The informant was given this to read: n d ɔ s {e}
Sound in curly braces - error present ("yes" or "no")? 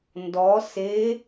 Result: no